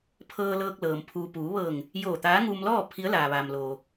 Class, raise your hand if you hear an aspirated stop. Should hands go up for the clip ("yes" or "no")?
yes